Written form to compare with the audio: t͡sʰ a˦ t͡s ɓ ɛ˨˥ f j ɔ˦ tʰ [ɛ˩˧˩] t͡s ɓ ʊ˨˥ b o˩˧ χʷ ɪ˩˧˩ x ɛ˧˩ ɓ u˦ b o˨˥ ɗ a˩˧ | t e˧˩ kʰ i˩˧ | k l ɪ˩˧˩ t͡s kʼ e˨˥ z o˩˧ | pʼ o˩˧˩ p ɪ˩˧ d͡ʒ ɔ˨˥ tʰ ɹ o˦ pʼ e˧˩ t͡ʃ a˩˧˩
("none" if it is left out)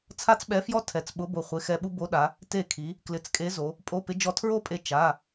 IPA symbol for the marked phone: ɛ˩˧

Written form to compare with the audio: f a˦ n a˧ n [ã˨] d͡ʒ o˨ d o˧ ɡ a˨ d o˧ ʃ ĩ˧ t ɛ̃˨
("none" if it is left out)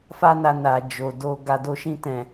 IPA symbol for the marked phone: a˨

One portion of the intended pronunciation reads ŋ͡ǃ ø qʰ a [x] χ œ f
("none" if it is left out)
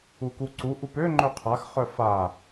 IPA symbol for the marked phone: x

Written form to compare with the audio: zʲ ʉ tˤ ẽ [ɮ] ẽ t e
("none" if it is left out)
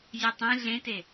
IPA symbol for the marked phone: ɮ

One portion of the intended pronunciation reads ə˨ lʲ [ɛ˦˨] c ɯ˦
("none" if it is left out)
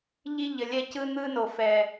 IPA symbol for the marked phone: ɛ˦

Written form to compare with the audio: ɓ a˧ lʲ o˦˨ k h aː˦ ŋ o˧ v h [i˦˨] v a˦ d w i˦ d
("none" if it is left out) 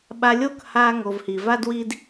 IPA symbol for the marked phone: i˧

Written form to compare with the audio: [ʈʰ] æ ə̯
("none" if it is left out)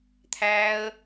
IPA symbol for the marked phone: t̪ʰ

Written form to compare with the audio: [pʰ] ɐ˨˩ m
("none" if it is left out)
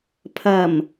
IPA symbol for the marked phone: pʰ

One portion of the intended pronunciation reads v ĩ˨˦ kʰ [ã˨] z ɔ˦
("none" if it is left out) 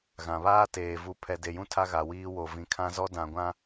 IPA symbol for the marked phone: ã˦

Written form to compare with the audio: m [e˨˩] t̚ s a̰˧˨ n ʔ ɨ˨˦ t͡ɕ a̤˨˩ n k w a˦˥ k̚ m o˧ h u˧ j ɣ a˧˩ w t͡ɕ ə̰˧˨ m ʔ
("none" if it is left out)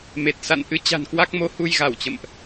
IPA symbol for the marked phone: e˨˩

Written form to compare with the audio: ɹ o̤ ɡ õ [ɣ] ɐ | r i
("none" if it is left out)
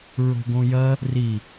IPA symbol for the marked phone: j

